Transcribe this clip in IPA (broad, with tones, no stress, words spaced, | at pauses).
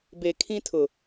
be˨kʰĩ˦tʰʊ˨